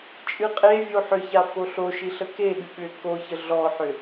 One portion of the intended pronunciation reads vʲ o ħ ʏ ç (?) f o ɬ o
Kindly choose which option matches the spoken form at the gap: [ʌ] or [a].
a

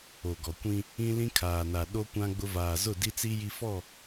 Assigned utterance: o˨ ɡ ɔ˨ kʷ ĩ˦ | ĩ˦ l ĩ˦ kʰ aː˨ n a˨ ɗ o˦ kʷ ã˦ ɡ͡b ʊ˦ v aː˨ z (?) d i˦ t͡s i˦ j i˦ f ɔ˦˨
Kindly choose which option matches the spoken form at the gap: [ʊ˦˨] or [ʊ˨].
ʊ˦˨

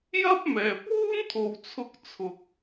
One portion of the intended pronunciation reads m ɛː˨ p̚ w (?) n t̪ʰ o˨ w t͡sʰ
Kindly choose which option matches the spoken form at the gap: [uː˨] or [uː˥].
uː˥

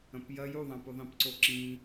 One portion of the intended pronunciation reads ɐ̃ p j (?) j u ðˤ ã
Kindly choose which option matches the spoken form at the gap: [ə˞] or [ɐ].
ɐ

